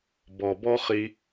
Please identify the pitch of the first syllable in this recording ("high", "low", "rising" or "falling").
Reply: low